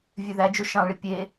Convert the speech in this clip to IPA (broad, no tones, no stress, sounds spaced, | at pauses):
vʲ ø ð æ d͡ʒ o ʃ ɑ̃ ɭ i pʲ e